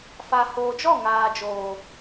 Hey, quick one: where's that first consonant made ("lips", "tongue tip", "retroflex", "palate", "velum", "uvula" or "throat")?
lips